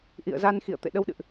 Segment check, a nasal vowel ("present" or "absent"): absent